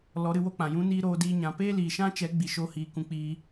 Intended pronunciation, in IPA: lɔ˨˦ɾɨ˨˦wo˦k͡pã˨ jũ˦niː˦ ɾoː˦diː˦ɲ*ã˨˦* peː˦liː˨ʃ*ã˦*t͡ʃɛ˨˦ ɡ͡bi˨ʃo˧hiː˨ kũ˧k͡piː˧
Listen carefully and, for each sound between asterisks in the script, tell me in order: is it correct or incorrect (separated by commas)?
correct, correct